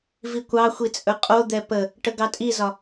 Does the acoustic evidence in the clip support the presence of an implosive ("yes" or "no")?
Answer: no